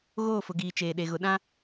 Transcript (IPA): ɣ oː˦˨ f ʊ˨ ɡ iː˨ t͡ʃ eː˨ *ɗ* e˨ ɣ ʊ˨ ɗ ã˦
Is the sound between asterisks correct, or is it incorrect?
correct